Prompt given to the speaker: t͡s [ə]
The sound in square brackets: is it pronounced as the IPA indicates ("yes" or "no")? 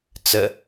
yes